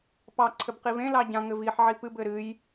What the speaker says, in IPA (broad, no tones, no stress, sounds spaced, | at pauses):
p ɑ ǀʰ ɘ b q i v ẽ l ɑ ɟ ã ŋ ɘ v i ħ ʕ i p ɨ b ɘ ɾ ɨ j